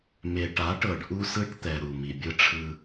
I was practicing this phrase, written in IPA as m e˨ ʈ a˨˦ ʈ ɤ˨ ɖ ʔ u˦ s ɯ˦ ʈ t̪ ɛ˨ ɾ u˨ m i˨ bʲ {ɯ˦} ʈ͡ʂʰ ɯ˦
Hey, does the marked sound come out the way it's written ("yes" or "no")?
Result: yes